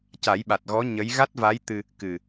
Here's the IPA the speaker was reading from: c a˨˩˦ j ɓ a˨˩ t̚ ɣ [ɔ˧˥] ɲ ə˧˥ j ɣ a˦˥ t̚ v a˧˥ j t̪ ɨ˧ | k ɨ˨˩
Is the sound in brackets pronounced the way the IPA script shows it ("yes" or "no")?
yes